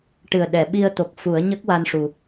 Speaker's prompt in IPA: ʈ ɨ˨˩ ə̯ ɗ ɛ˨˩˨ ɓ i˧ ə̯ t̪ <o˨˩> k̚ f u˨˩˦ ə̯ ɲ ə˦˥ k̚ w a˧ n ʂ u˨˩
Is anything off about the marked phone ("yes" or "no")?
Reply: no